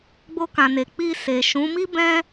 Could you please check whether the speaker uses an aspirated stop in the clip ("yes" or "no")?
no